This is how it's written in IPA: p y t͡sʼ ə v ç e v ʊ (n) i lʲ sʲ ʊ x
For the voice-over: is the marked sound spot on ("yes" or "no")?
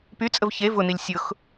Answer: yes